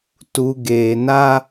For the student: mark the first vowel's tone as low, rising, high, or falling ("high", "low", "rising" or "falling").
low